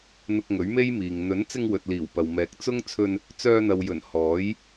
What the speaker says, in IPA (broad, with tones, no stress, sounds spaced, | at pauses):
n̪ ʊ˧ k̚ ŋ ɵ˨˥ ɥ m e˥ j m iː˨ ŋ n̪ ɵ˨˥ n t͡s ɪ˧ ŋ w ɵ˨ t̚ l iː˨˩ w p ɐ˨ w m ɛː˨˥ k̚ t͡s ʊ˥ ŋ t͡sʰ ɵ˧ n | t͡s œː˧ n̪ ɐ˨ w j ɵ˨˩ n h ɔː˨˥ j